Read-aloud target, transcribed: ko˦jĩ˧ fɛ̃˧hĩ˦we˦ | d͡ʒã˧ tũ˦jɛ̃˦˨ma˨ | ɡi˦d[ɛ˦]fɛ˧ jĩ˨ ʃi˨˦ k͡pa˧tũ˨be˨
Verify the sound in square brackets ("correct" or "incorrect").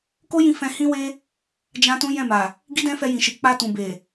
incorrect